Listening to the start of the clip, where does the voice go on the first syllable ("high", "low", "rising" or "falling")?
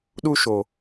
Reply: high